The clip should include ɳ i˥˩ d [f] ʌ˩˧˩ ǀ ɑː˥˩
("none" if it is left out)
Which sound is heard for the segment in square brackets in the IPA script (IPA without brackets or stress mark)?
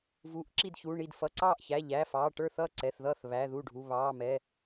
f